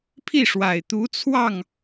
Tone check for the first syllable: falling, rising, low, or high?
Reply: falling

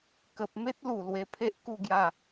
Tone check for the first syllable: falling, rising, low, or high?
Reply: low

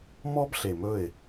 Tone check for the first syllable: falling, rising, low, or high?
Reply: high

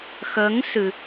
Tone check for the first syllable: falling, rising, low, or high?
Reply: rising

